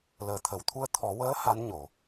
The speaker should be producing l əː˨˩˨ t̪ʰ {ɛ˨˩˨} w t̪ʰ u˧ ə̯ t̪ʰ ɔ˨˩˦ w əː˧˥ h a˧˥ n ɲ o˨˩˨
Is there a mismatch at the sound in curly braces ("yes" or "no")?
yes